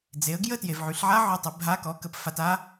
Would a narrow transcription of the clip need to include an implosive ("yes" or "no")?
no